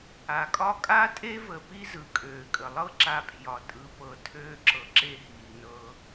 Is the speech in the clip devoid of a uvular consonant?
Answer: yes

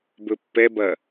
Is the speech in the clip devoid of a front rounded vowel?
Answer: yes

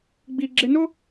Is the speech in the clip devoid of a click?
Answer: no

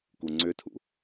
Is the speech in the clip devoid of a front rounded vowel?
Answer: no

